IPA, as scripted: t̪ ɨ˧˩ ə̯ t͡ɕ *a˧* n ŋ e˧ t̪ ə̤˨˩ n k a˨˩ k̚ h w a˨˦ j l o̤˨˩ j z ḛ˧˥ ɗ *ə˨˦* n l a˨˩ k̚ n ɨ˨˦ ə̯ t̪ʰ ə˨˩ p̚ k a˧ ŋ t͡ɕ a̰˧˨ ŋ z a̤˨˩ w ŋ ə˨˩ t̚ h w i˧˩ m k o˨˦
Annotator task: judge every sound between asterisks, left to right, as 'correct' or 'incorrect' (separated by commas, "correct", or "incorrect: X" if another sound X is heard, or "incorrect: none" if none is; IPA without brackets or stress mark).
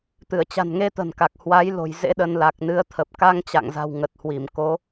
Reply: incorrect: a̤˨˩, incorrect: ə˧